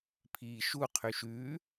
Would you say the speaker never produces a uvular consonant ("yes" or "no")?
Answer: no